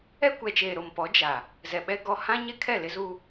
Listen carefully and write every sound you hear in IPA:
ɛ˦kʷɛ˨t͡ʃeː˨ ɾo˨m pɔ˨˦d͡ʒa˨ | zɛ˨ɓɛ˦ɡɔ˦ hã˦ɲɛ˦kʰɛ˦˨ lɪ˦zu˦

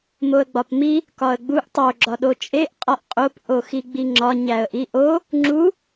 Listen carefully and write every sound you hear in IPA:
moə̯ɡ͡bɒpmi | kɒə̯ɡ͡buʔ tˤo ɡ͡ǁɒɗot͡ʃʼeʔ qʼɒʔqʼop ʔoxiɡ͡biŋ͡ǁɒ ɲæə̯ʔiʔo | ŋ͡ǁu

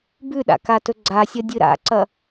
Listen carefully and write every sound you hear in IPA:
bʉɗa̰ katɵɡ͡ǀasʲɐ dʲɨɾa̰ǀɐ

